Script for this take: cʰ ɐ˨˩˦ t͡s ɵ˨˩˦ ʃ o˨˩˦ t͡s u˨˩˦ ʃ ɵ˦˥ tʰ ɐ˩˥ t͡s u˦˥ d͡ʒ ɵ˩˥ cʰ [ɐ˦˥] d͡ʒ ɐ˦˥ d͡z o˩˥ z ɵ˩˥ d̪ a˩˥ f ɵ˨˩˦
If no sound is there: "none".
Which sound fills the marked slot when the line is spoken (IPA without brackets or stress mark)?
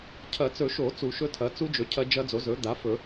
ɐ˦˥